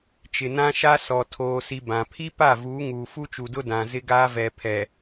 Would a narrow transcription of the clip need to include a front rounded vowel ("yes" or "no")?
no